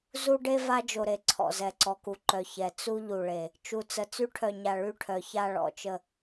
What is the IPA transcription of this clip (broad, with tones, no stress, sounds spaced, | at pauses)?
z u˦ ɖ e˦ v a˦ d͡ʒ o˨ ɾ e˨ ǀʰ ɔ̰˨ z ɛ˨ ǀ ɔ˨ k u˨ ǃ œ˨ ç ɛ˨ t͡s u˦ ʎ u˨ ɭ e˨ | t͡ʃ u˨˦ t͡s ə˨ t͡s y˦ ʈʰ œ˨ ɲ a˨ ɭ y˦ ʈʰ œ˨ ç a˦˨ ɭ ɔ̰˨ t͡ʃ ə˨